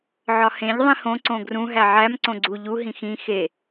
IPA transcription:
ʕɒhẽʎ ðˤĩhõ ǀõɡrũ ɦæʕæm ǀõɡ͡ǀu ʎu ɦĩxĩ xe

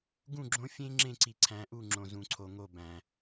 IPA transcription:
ɡũ˦˨ɡ͡ǁõ˦ fʲẽ˦ ŋ͡ǁẽ˦˨ǀi˨ǀʰæ̃˨˦ʔu˦˨ ŋ͡ǁõ˨zũ˨ǀʰo˨ŋo˦˨ bæ̃˨

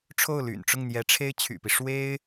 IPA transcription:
ʈ͡ʂʰo˥˩ʊ̯ly̰˨˩nʈ͡ʂʊ˥˩ŋ n̪jɛ˧˥ʈ͡ʂʰe˥ɪ̯ t͡ɕʰy̰˨˩pi˦ ʂwe˥ɪ̯

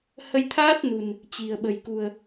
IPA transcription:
hə˧jt̪ʰaː˦˥t̚nṳ˨˩n | t͡ɕi̤˨˩ə̯ɓə̤˨˩jkṳ˨˩ə̯

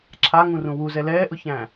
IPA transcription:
ǁʰaŋũrũ wuzɛ lɛːʔʊçæ̃ː

